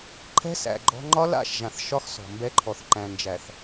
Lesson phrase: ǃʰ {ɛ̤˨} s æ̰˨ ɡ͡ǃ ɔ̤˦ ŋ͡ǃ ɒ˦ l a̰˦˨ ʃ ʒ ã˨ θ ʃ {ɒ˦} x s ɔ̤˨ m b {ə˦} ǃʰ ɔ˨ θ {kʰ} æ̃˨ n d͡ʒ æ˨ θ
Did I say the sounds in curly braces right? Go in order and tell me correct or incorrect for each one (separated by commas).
incorrect, correct, incorrect, incorrect